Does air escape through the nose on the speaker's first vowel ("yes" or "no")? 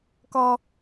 no